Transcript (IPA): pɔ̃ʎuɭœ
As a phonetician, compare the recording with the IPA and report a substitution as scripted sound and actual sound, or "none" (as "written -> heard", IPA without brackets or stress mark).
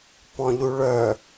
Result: none